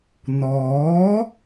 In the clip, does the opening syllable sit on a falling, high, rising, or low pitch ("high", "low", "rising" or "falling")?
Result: rising